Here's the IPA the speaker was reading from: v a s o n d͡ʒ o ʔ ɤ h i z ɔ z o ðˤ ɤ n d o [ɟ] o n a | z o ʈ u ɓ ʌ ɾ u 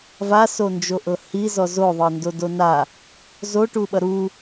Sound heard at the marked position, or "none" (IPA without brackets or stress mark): d